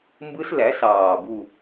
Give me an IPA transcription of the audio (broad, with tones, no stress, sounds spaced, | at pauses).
m b ɯ˦˥ s l æ˩˥ s ɑː˨˩ b u˦˨